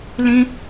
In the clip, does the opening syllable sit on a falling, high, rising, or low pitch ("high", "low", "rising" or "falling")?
high